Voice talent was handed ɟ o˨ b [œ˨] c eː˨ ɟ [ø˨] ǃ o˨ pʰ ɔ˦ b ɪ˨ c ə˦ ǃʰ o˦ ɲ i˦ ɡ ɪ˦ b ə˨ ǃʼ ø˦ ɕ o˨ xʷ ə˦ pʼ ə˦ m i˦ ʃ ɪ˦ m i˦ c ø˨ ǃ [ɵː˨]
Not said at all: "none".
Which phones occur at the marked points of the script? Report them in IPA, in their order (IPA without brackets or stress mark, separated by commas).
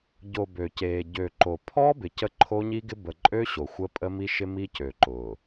ø˨, ø˨, ʊː˨